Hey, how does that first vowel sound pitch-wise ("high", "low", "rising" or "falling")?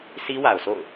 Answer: high